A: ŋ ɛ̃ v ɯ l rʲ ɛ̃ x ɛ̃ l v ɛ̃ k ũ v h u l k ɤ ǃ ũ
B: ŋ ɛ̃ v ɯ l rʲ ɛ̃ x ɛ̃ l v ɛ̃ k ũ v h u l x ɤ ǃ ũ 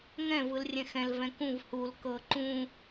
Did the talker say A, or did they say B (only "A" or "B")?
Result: A